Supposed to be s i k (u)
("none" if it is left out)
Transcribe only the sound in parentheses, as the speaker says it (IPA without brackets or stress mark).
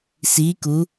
u